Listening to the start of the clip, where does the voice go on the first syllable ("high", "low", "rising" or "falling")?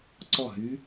falling